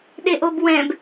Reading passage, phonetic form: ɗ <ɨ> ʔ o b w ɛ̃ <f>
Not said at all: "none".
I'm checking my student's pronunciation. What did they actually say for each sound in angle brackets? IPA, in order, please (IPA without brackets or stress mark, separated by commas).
e, b